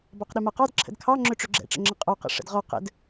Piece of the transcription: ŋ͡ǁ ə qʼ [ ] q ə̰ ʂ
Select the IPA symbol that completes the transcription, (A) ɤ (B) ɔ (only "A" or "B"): B